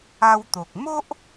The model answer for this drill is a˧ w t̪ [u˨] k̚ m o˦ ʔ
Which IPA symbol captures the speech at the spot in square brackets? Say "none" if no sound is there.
o˨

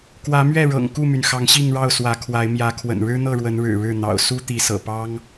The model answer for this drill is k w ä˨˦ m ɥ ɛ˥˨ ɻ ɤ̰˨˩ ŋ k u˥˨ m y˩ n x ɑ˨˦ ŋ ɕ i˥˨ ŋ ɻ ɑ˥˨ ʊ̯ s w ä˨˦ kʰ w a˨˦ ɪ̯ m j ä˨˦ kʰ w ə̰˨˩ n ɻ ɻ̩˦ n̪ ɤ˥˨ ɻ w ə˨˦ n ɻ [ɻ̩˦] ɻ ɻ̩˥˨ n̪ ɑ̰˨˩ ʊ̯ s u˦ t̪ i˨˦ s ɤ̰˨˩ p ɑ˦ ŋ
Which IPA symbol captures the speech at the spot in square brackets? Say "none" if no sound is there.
ɻ̩˨˩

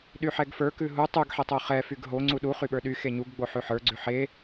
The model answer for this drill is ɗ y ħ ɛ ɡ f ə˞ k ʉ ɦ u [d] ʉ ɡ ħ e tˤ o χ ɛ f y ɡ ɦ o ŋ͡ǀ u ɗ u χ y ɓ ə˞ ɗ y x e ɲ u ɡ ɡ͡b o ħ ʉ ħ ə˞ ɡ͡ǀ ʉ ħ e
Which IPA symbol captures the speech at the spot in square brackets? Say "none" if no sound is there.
tˤ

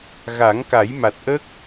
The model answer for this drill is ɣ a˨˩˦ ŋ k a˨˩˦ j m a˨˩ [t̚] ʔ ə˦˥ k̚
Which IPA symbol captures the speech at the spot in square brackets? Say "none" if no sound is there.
t̚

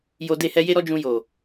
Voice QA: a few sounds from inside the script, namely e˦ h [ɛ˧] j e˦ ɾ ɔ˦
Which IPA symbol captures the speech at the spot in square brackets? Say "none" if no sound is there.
ɛ˧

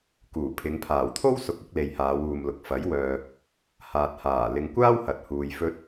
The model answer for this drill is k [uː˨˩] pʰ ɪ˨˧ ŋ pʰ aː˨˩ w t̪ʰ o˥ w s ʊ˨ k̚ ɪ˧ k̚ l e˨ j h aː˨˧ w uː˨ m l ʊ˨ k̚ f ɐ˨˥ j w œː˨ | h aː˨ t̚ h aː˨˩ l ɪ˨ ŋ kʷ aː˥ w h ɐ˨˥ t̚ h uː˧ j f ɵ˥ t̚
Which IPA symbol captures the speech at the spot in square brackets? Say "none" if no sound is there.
uː˨˩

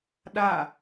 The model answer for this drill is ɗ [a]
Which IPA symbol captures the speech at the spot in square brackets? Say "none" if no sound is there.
a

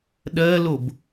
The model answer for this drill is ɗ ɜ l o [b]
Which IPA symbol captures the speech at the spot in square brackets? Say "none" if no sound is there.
b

